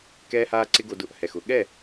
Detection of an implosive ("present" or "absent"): present